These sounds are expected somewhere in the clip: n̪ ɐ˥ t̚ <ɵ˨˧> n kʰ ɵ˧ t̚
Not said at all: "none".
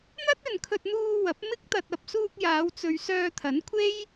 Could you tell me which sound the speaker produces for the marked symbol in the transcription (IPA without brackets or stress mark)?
ɵ˨